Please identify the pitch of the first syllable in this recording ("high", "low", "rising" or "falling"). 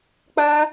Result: high